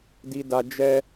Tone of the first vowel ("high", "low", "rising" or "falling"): high